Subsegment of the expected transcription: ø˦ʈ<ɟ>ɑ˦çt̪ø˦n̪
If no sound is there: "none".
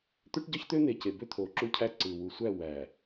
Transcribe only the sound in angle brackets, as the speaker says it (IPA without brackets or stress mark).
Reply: ɟ